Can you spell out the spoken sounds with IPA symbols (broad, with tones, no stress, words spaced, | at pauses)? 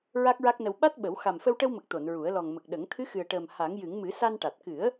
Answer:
ɹa˦˥k̚ɹa˦˥k̚nə˧w ɓa˦˥t̚ɓə˨˩˦w xa˨˩mfə˧wʈə˧wmə˨˩k̚ t̪o˨˩˨nɹu˨˩˦ə̯lɔ˨˩ŋ mə˨˩k̚ɗə˨˩˦ŋ t̪ʰɨ˧˥xɨ˨˩ə̯ʈəː˨˩m ha˨˩˦ŋjɨ˨˩˦ŋ mɨ˨˩˦sa˧nʈa˨˩t̚ kɨ˨˩˦ə̯